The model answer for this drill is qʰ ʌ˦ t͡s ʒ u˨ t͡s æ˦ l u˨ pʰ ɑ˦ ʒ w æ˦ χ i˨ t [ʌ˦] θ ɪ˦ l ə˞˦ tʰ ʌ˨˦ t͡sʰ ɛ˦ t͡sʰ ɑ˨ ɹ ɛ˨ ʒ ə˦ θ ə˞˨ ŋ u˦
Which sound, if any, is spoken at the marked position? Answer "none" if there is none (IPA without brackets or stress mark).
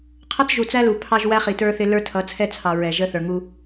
ə˞˦